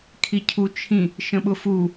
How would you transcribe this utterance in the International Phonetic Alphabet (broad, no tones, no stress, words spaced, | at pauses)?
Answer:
kʰicʰut͡ʃʰĩ | ʃə̃ɓʊfu